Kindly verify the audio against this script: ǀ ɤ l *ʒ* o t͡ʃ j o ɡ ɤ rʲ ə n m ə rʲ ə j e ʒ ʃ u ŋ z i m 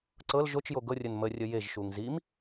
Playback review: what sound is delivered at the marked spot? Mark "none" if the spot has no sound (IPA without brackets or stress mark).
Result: ʒ